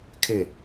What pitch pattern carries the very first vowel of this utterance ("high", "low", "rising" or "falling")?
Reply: falling